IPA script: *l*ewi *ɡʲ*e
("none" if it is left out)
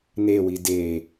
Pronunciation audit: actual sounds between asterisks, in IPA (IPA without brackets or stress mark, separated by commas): n, d